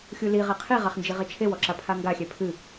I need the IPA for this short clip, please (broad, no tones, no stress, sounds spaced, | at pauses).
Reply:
xʲ u l i ʁ e qʰ i ʁ a χ n d͡ʒ i ʁ e t͡ʃʰ e w ɔ ǁ a pʰ a ŋ ɡ a xʲ ɛ pʰ ɨ